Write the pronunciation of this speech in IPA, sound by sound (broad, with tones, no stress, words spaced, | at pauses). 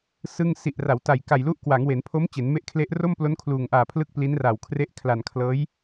sɯ˥˩ŋ si˨˩ʔra˩˦w ta˨˩jka˨˩jlu˦˥ʔ kwa˩˦ŋwe˩˦npʰo˦˥m t͡ɕe˩˦nme˦˥ʔkʰle˦˥ʔ ro˥˩mplo˦˥n kʰluː˨˩ŋʔaː˨˩ pʰlɯ˥˩k̚pliː˦˥nraː˨˩w kʰre˦˥ʔ kʰla˨˩nkʰlɤː˦˥j